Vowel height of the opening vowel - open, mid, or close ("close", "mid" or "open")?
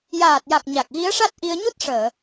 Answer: open